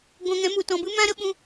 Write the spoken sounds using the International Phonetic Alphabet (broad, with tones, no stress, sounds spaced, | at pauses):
ɡʷ ã˧ ŋ ɛ̃˨˦ m u˨ t ɔ̃˨ b ɨ˦ m ã˦ ɾ ə˦ ɓ ũ˧